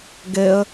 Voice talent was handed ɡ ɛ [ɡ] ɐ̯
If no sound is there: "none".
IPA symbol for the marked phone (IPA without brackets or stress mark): none